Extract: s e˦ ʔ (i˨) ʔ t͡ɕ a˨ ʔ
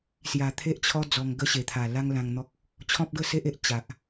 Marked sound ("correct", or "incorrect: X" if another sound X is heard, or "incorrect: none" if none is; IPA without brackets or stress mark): incorrect: e˨